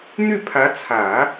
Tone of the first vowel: falling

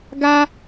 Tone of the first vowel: high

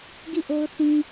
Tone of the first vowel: falling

